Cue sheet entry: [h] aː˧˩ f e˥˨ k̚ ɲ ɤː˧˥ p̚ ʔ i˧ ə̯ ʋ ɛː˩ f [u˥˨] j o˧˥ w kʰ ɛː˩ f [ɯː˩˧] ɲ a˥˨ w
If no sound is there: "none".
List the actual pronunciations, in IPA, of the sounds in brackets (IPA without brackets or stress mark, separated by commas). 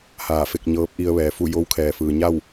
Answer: h, u˥˨, ɯː˩